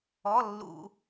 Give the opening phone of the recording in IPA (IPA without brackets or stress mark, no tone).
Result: ɔ